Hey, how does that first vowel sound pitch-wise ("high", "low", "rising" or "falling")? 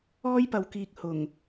high